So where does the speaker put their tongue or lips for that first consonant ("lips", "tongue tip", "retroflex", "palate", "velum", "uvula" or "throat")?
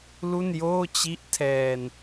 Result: tongue tip